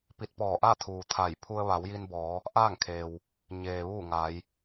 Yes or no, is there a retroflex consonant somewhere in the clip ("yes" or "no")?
no